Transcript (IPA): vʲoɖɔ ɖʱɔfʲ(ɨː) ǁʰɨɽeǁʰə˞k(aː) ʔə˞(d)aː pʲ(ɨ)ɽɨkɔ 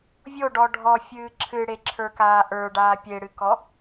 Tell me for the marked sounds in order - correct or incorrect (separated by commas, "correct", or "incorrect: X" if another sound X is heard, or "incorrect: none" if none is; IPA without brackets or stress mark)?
correct, correct, incorrect: ɖ, incorrect: e